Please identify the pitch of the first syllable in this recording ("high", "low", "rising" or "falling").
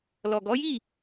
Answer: low